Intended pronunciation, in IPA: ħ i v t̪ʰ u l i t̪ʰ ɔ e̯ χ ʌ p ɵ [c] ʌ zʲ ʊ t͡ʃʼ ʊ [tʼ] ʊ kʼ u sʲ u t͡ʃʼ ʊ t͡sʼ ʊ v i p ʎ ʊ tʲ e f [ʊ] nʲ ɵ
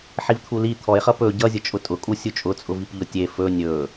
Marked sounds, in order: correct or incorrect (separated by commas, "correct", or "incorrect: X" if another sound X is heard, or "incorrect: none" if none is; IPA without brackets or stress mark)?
incorrect: ɟ, correct, incorrect: ɵ